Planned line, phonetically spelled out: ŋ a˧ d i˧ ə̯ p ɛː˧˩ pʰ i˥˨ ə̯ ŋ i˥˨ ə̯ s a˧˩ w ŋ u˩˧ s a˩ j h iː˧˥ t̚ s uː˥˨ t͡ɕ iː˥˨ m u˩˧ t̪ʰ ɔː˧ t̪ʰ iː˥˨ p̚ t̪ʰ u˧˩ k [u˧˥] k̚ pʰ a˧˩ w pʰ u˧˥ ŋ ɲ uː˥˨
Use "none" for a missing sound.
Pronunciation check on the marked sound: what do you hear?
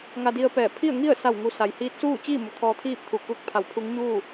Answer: u˧˥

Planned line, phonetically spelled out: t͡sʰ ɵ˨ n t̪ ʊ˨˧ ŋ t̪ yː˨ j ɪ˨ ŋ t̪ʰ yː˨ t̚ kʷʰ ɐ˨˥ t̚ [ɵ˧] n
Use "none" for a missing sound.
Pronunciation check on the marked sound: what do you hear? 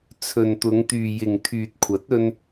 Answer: ɵ˧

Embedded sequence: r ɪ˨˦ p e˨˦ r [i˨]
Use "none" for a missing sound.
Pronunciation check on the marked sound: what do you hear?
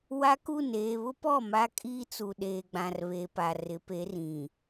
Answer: ĩ˨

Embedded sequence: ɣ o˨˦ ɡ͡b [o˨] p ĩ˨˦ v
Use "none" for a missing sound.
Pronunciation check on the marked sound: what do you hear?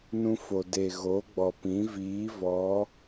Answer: ɔ˨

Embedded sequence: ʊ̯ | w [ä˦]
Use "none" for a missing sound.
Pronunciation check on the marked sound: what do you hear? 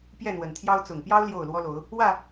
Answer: ä˥˨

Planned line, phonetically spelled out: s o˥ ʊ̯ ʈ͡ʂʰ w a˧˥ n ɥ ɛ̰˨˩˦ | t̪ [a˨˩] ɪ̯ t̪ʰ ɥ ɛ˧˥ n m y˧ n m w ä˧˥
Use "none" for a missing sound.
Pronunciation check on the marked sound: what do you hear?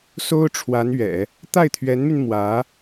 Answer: a˥˩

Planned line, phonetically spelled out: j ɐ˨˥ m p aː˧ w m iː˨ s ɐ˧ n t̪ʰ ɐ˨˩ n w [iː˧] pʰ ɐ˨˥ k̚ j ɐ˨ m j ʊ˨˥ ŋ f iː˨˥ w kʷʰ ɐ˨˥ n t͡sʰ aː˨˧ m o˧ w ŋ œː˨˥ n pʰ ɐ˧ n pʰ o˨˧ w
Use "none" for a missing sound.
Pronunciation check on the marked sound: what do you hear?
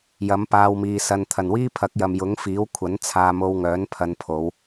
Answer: iː˥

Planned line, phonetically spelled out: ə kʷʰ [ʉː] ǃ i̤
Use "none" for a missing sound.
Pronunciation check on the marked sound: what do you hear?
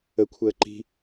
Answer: əː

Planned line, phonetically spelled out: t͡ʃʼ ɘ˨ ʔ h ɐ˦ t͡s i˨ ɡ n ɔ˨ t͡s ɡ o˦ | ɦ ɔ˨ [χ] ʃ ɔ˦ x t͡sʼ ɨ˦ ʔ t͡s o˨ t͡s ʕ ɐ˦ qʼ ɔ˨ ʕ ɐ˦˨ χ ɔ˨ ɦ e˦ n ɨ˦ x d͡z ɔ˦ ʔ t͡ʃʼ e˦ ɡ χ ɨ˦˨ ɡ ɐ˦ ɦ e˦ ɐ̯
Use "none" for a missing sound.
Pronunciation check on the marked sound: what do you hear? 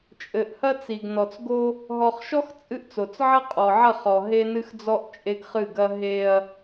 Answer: χ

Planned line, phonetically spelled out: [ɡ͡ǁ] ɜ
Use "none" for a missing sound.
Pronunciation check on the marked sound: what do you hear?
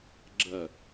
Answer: ɡ͡ǁ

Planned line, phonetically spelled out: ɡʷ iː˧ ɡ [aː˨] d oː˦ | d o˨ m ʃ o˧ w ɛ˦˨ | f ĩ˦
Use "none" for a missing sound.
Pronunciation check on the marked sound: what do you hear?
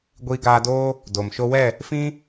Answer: aː˧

